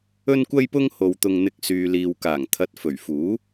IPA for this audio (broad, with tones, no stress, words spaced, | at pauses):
ɵ˥nkʷɐ˥jpʊ˥ŋ ho˧wt̪ʊ˧ŋn̪ɪ˧k̚ syː˨liː˨wkaː˨˩ŋt̪ʰɐ˨˥t̚ fɵ˨˩ɥfuː˨˥